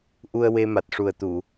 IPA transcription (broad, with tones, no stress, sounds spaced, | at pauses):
ʔ u˧ ə̯ w e˧ m a˨˩ t̚ ʂ u˨˩ ə̯ t̪ u˨˩˨